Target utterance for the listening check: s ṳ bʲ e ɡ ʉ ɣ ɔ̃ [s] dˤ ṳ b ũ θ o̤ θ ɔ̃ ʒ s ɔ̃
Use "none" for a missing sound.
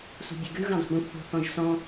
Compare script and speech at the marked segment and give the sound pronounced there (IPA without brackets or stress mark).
none